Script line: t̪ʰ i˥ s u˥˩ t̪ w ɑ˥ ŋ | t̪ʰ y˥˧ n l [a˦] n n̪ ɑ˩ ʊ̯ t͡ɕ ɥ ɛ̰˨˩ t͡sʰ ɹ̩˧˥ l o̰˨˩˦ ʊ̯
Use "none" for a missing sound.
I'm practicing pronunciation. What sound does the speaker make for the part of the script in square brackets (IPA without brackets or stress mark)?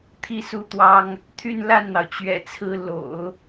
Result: a˥˩